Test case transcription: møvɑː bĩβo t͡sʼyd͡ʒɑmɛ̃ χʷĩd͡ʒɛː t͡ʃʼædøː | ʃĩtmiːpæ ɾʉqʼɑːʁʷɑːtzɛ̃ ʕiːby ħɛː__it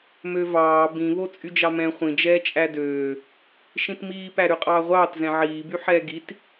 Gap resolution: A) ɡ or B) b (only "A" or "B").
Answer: A